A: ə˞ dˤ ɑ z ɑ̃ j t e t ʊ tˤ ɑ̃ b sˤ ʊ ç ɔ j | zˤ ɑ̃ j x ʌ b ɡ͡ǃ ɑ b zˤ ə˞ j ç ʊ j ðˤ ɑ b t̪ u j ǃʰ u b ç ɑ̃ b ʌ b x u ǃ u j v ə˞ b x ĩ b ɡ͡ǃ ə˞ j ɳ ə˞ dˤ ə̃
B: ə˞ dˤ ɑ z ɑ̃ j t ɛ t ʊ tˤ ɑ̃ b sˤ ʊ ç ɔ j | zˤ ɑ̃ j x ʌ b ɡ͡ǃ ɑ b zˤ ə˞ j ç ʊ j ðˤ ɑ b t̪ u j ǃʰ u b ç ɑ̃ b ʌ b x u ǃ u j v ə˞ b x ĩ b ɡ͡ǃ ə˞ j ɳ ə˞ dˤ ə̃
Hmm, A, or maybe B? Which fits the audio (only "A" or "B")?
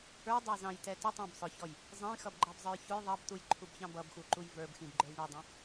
B